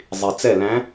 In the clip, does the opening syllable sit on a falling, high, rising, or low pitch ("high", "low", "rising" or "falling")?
low